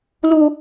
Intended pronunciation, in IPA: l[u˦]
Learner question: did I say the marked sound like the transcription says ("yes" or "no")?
yes